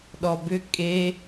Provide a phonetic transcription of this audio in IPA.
ɗ ɔ b ʏ kʼ e

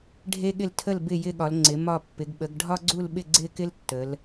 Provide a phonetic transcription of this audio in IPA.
ɖʱ e˦ ɠ ɪ˦˨ l tʰ ə˦˨ l b ɪ˦˨ j ɪ˦˨ ɠ ɒ˩˧ l ŋ͡ǀ ɪ˩˧ m ɒ˦˨ pː ɪ˩˧ ɡ ɓ ə˩˧ ɡ ɖʱ ɒ˦ ɡ͡ǀ u˦˨ l ɓ ɪ˦˨ ɡ͡ǀ ɪ˦˨ k ɪ˦ l tː ə˩˧ l

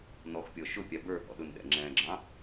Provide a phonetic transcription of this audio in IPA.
n ɔ x pʲ ɔ ʃ ʊ pʲ ɑ b ə˞ h ɔ̰ ɗ ʊ n ɗ ɛ̰ ŋ͡ǁ ɛ̃ ɡ͡ǁ ɑ̃

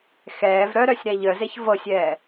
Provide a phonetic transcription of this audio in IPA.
x ɛː v ɾ œ ɾ œ sʲ ɾ æ ʎ œ z e ç v ɤ sʲ ɛː

